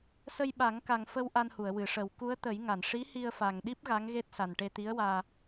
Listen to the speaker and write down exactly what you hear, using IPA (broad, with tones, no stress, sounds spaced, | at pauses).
s ə˧ j ɓ a˨˩˦ ŋ k a˨˩ ŋ f ə˧ w ʔ a˧ n h u˨˩˨ ə̯ w ɨ˨˩˨ ʂ ə˨˩˦ w k u˧˥ ə̯ t̪ ə˨˩˦ j ŋ a˨˩˨ n ʂ i˧˥ h i˧ ə̯ f a˨˩ ŋ ɗ i˦˥ p̚ ɣ a˧˥ ŋ ɣ e˦˥ t̚ s a˨˩ n ʈ e˧ t̪ i˧˥ ə̯ w aː˧